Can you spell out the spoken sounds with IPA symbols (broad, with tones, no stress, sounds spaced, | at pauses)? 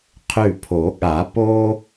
qʰ ʉ˧˩ pʰ o˨˩˦ ɠ a˨˩˦ p o˥